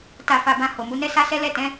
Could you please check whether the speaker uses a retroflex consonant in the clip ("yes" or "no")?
no